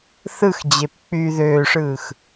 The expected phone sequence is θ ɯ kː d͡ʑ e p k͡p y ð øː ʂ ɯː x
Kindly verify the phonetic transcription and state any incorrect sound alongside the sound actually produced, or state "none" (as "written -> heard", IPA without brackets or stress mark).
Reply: kː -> x